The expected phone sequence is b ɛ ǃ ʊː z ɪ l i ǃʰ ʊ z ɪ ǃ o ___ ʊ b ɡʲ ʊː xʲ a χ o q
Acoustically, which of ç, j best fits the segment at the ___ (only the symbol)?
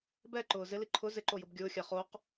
j